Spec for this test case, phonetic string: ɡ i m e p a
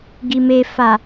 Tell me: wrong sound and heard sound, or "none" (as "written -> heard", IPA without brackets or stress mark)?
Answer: p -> f